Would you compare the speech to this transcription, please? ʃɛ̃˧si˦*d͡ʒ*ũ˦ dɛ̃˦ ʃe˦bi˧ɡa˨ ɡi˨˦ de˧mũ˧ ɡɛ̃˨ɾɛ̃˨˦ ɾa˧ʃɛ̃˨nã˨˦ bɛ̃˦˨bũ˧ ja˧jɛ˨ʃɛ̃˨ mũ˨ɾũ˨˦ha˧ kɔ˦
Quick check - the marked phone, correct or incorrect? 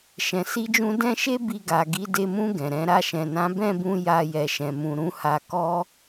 correct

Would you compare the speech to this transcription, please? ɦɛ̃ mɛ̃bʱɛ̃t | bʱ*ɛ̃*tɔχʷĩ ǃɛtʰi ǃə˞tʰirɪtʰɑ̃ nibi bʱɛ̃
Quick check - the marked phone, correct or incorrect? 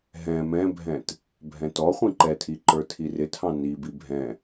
correct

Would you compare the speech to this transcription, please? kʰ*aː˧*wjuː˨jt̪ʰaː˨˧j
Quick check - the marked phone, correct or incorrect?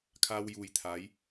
correct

